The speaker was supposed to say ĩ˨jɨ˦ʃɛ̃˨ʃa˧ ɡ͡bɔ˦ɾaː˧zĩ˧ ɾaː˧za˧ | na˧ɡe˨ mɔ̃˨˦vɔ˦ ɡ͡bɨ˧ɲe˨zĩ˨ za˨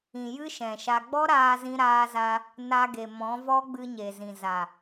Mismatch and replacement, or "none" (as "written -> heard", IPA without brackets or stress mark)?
none